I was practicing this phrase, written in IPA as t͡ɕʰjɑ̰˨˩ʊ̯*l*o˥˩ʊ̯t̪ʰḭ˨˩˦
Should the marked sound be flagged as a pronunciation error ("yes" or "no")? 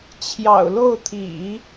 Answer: no